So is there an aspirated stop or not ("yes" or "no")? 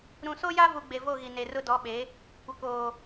no